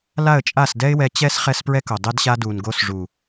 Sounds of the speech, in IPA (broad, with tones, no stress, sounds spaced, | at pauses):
l a˦˨ ə̯ t͡ʃʼ a˦˨ s d ɛ˦ ɪ̯ w ɛ˧ t͡ɕ ɛ˦ s χ ɛ˦ s p ɹ ɛ˦ k o˨ dˤ e˦ d ɕ a˦ d u˨ n ɡ o˧ s ʐ u˨